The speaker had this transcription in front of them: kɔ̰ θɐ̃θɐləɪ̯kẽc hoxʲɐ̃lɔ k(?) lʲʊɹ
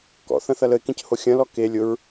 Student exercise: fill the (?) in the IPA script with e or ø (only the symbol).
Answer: e